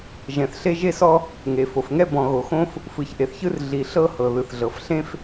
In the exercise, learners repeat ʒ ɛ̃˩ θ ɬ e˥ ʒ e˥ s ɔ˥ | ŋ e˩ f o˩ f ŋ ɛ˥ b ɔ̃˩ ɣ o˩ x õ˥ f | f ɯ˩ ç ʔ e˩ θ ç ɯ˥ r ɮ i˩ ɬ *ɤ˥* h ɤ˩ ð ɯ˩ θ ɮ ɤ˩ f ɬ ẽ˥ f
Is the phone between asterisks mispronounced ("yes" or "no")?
no